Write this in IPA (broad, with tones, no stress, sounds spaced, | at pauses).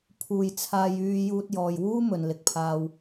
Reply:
pʰ uː˨ j t͡sʰ aː˧ j yː˧ j uː˧ t̚ j ɔː˨ j w uː˥ m ɵ˨ n l ɪ˨ k̚ pʰ aː˧ w